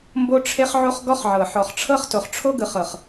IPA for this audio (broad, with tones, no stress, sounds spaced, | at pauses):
m b o˦ ʈ͡ʂʰ e˦ χ ʕ o˦ χ ɡ ɔ˦ χ ʕ ɤ˨ ħ ɔ˨ χ ʈ͡ʂʰ ɤ˦ χ t o˨ χ ʈ͡ʂʰ o˦ ɡ ɯ˨ χ ɤ˨ χ